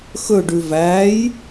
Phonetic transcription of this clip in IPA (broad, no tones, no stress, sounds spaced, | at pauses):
x ɵ ɖ ʉ v æ j